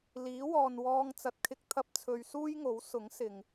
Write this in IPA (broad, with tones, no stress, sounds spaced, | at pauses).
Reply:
l iː˨˥ w ɔː˨ n w ɔː˧ ŋ t͡s ɐ˨ t̚ kʰ ɪ˧ k̚ t̪ʰ ɐ˧ p̚ t͡sʰ ɵ˨ ɥ s uː˥ j ŋ o˨˥ w s ʊ˨˥ ŋ s ɪ˨ ŋ